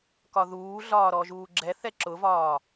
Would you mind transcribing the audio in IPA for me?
k ɒ ð uː ɮ ɒː ɾ ɔ ʒ uː ɡ͡ǁ ɛ θ ɛ ǁ ʊ v ɒː

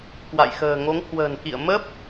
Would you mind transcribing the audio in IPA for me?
k w a̰˧˨ j x ə̤ː˨˩ ŋ o˨˦ ŋ h w ə̤ː˨˩ n k ḭ˧˨ ə̯ m ə˦˥ p̚

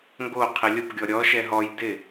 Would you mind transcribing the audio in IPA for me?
ŋ ɡ o qʰ ɪ lʲ ʊ p ɡʲ ɔ ɾʲ ɔ ʃ ɛ ɦ ɔ j d ɪ

